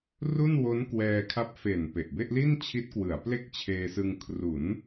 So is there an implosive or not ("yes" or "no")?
no